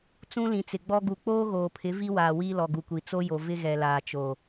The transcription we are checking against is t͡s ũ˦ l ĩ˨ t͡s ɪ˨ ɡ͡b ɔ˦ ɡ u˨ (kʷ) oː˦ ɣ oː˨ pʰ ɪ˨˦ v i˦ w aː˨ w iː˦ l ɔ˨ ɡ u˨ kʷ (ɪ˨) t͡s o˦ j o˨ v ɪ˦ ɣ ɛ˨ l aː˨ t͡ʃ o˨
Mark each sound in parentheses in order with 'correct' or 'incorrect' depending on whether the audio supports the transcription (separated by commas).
incorrect, incorrect